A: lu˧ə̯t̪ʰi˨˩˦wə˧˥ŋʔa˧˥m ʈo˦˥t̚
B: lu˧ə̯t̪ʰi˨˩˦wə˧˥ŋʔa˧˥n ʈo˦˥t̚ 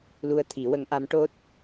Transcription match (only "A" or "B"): A